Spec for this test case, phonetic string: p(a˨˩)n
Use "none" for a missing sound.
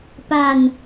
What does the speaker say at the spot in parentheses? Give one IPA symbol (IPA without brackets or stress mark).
a˧